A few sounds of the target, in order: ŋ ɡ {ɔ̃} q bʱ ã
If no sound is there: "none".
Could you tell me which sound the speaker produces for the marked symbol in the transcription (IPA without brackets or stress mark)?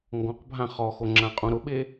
ɔ̃